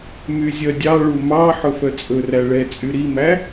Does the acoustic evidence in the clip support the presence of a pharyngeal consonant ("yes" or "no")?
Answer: yes